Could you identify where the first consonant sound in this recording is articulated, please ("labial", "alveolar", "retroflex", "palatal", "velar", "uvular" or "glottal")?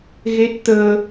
velar